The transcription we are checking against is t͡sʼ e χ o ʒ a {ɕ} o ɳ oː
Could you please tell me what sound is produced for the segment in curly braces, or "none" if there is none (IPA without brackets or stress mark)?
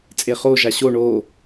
ɕ